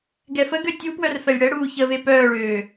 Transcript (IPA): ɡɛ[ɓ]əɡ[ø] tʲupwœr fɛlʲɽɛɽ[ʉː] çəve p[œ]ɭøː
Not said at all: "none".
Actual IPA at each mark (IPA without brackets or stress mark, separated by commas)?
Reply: f, ø, uː, œː